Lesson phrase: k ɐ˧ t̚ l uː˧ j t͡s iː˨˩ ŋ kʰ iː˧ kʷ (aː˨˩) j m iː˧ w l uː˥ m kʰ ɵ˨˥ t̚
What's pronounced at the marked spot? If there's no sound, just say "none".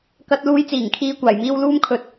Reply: aː˨˩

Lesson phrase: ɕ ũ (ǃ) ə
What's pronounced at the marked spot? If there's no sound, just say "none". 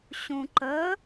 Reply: ǃ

